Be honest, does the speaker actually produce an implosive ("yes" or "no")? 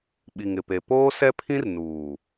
yes